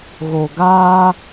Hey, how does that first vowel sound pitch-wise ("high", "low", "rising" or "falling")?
low